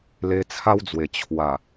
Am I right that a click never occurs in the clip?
yes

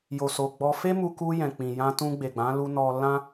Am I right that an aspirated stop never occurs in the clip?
yes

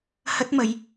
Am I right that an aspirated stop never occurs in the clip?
yes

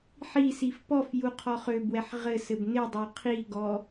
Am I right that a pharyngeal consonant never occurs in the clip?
no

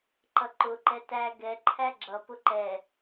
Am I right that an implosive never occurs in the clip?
yes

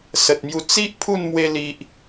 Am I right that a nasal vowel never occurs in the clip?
yes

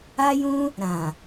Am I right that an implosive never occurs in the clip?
yes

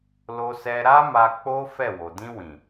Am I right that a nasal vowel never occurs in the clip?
no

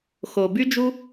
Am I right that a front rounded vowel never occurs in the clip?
no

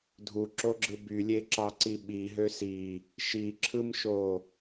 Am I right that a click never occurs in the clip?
no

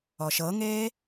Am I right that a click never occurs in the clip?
yes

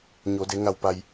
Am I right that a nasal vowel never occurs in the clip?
yes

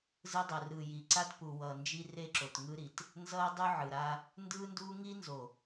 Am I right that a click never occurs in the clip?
no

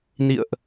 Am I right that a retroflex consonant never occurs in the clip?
yes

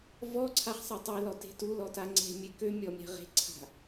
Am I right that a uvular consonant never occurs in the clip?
no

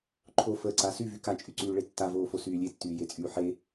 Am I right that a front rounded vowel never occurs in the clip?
no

